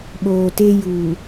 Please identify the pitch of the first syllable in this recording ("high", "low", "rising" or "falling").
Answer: low